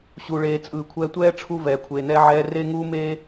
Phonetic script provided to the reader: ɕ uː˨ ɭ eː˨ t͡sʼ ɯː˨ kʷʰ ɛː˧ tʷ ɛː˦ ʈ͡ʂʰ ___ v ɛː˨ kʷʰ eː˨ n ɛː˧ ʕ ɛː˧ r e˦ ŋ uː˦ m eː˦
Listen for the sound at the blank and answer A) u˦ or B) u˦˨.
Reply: A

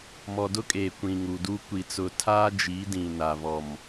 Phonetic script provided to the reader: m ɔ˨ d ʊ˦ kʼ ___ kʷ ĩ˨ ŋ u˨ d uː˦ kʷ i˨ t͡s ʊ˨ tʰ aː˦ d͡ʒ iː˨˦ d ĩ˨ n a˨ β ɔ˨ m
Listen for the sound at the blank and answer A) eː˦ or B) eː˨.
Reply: B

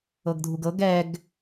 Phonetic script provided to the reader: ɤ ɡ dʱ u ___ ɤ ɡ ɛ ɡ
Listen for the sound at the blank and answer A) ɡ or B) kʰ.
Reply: A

